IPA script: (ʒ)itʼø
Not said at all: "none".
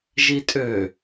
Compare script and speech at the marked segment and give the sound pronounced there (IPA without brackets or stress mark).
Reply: ʒ